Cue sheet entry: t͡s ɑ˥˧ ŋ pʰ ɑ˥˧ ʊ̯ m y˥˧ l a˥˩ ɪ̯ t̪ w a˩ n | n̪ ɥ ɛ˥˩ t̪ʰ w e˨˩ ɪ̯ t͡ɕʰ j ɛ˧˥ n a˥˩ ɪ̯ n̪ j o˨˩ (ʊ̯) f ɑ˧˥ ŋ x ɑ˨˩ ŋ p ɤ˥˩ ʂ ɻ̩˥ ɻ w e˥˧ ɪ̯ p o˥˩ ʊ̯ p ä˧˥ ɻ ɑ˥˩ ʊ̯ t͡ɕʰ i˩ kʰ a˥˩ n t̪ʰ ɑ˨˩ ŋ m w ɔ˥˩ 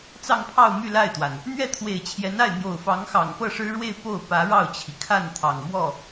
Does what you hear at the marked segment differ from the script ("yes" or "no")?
no